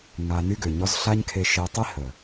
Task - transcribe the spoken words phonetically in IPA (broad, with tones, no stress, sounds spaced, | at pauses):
ŋ a˧ n y˦ ɡ ø˨ ɲ ɔ˦ z ɬ a˦ ɲ kʰ e˧ ʃ e˧ tˤ i˦ h ə˨